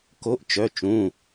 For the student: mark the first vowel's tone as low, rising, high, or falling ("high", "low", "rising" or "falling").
rising